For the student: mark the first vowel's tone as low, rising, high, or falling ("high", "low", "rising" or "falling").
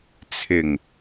low